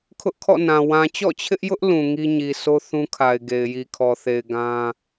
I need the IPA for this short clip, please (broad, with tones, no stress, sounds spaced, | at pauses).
kʰ ʊ˦ ʔ kʰ ɔ̰˦˨ n ã˨ w ã˨ t͡ɕ ɔ̰˦˨ t͡ɕʰ ɪ˦ ʔ j ʊ˦ ʔ l ũ˨ ŋ i˦ ɲ i˨ s o˦ θ ũ˦ kʰ a˨ ɪ̯ ɡ e˨ ɪ̯ j i˨ kʰ ɔ˨ θ e˨ ɪ̯ ɡ ã˦